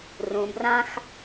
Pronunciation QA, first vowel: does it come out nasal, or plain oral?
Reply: nasal